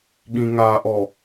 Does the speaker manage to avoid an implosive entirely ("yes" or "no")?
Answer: no